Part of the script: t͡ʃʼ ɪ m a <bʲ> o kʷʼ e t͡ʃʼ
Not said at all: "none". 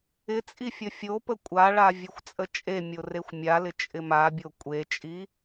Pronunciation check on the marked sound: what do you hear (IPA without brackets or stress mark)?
bʲ